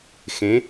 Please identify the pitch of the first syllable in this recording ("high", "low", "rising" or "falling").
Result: rising